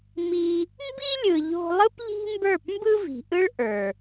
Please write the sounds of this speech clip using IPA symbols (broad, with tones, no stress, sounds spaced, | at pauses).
m i˧ | m b i˦ lʲ ɯ˨ ʎ o̤˧ lˠ ɯ˦ p ʎ i̤˦ m b ə˞˦˨ p m b ɯ˦ v i̤˨ ʔ ɯ˦ ɭ ʔ ə˞˨